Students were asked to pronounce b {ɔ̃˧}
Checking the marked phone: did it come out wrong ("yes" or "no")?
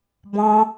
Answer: no